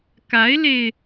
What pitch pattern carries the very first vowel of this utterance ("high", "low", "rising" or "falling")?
rising